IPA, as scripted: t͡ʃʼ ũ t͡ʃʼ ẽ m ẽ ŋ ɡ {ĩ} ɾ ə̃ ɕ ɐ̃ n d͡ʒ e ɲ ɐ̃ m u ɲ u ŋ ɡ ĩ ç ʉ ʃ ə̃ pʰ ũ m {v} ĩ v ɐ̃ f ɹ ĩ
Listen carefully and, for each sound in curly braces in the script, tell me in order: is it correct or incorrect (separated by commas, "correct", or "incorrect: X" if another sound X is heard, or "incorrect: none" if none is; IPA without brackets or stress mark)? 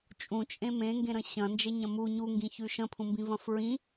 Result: incorrect: ẽ, incorrect: b